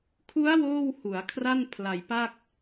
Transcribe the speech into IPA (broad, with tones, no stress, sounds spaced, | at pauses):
kʰ u˦˥ a̯ w oː˥˩ w h u˩˦ a̯ kʰ r a˥˩ n pʰ l a˨˩ j p a˥˩ k̚